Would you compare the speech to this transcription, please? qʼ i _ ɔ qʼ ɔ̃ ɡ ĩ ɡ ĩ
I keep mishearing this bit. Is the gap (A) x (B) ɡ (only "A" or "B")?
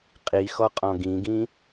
A